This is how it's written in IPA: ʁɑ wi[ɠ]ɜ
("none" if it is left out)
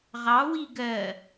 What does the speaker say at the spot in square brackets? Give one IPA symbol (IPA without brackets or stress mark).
ɡ